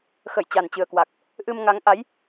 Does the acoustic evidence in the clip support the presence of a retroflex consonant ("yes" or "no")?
no